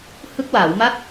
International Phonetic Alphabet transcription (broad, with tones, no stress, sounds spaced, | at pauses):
h ɯ˦˥ k̚ w aː˩˦ w m a˥˩ t̚